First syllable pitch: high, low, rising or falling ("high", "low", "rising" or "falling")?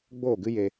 falling